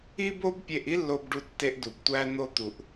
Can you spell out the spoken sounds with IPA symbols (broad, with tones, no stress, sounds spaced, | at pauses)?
i˥ b o˥ b pʲ e˧ ʔ i˥ lː o˧ b ɖ u˧ tː e˧ ʔ d u˩ b tʷ æ˧ n̪ o˧ t̪ u˩ ʔ